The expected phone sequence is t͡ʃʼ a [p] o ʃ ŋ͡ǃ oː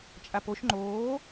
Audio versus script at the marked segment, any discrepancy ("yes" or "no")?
no